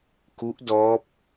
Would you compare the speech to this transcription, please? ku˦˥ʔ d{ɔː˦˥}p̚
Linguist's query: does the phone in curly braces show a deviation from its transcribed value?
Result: no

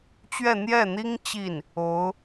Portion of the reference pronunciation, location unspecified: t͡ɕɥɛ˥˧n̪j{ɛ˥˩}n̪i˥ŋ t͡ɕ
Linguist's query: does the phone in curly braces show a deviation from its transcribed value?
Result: no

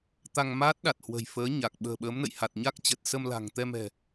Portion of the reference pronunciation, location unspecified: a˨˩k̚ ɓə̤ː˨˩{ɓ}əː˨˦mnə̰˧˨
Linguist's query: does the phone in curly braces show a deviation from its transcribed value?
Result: no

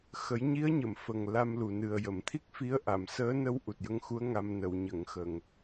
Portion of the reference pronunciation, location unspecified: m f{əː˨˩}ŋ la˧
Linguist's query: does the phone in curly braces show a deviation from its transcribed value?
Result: yes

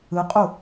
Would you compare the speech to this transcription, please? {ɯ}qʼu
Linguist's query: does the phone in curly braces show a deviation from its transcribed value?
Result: no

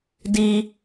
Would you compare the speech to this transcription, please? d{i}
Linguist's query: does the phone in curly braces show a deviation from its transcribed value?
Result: no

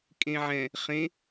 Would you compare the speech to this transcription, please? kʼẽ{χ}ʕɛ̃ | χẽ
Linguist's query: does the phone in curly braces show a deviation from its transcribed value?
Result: yes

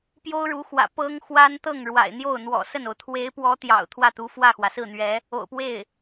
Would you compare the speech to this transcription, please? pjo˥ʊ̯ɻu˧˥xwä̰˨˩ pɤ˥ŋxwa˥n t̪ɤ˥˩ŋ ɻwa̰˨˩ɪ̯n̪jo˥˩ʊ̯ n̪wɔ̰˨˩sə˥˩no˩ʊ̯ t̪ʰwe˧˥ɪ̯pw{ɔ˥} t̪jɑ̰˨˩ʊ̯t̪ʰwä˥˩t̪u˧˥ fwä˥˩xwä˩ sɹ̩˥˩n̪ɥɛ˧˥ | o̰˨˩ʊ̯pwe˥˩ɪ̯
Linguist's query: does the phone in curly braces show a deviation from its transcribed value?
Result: yes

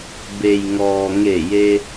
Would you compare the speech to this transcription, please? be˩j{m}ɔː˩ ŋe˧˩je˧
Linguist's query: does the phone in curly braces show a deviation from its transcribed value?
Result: yes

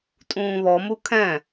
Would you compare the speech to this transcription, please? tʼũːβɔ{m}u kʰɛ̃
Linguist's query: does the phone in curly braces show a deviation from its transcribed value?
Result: no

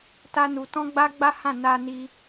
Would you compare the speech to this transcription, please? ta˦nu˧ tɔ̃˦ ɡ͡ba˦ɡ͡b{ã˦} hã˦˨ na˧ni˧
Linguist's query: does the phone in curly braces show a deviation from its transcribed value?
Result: yes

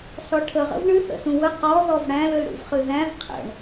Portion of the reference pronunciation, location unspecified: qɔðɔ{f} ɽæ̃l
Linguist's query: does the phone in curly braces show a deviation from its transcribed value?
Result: yes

